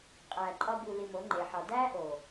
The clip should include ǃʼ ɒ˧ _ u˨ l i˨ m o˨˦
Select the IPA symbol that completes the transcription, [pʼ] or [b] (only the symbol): b